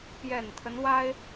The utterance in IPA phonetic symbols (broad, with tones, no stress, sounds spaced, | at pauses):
p j ɛ˨˩ n t̪ʰ ə˦ n w a˥ ɪ̯